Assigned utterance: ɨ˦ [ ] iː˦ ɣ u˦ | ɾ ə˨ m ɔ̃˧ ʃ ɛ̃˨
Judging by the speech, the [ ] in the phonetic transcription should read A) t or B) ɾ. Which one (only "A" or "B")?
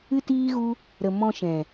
A